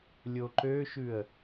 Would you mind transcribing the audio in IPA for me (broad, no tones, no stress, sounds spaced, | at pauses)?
lʲ o ǃ ø ʃ ʉ ə̯